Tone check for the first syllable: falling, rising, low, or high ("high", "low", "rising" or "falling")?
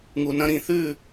low